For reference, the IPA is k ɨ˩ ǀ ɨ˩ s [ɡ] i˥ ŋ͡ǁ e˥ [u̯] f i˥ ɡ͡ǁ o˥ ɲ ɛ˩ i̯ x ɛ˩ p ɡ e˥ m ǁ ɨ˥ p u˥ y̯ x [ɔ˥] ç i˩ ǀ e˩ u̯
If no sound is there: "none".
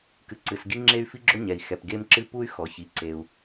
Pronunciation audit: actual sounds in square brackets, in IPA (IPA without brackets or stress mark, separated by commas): ɡ, y̯, ɔ˩